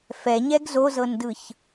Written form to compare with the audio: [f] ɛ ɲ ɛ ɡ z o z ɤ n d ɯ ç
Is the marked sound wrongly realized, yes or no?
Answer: no